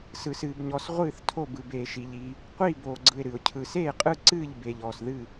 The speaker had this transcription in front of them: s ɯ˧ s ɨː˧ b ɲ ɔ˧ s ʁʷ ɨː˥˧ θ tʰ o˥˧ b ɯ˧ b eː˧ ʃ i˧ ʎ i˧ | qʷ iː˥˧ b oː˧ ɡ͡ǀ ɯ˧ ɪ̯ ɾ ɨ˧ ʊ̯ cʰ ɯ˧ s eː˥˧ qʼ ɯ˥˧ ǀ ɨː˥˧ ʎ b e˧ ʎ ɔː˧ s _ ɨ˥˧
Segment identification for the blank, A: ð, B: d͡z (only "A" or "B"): A